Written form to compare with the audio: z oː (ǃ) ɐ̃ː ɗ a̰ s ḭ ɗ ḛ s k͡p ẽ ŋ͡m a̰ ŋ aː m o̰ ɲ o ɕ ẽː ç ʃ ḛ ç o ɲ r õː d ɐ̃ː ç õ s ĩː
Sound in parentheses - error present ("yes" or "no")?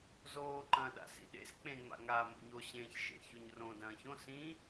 no